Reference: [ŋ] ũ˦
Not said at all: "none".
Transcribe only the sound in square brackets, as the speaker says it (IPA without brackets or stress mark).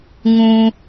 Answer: ŋ